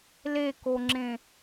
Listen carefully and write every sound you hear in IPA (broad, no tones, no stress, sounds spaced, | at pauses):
l e k o ŋ͡ǁ ẽ